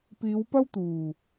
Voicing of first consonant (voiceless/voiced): voiceless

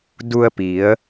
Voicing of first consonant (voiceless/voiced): voiced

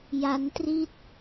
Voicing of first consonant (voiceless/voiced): voiced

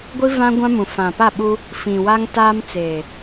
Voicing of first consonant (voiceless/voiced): voiced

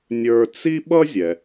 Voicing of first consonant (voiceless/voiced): voiced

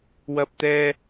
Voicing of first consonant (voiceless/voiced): voiced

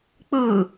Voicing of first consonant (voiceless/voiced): voiceless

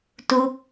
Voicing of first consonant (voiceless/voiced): voiceless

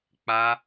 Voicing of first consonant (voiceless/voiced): voiceless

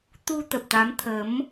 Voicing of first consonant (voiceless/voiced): voiceless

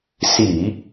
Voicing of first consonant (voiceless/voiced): voiceless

